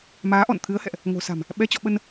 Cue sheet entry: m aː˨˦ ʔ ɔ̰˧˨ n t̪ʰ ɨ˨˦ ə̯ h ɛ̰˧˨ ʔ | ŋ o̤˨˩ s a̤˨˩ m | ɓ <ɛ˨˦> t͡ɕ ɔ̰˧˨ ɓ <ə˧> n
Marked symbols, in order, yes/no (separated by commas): yes, yes